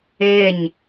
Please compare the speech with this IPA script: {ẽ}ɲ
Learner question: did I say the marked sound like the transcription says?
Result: no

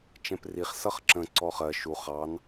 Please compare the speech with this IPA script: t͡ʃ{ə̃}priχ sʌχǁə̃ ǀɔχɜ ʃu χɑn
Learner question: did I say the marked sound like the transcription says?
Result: no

